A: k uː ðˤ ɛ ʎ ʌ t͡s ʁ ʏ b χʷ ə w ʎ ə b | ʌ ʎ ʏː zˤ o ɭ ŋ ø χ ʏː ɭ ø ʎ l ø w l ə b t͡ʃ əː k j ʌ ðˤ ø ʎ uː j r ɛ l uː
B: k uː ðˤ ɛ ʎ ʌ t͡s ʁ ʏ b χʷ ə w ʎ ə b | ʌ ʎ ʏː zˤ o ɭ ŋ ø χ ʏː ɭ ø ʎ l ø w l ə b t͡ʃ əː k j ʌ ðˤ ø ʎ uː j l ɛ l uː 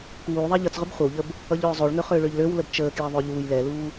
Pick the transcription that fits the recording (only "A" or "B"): B